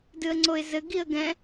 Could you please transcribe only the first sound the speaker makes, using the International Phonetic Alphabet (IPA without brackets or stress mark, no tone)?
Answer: d